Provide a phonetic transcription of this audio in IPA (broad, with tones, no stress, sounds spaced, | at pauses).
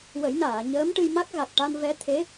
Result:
w ə˨˩˦ j n aː˨˩˨ ɲ əː˧˥ m ʈ ɨ˧ j m a˦˥ k̚ ɣ a˨˩ k̚ ʈ a˧ n v ɛ˧˥ t̪ʰ e˧˥